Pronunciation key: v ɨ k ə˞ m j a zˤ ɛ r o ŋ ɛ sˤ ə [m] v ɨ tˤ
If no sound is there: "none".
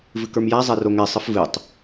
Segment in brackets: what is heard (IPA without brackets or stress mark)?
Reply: f